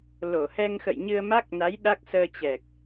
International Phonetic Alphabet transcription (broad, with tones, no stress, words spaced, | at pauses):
lo˧˩hɛ˧ŋxə̰˧˨j ɲɨ˧ə̯ma˦˥k̚na˨˦j ɗa˦˥k̚ səː˧t͡ɕɛ˨˩k̚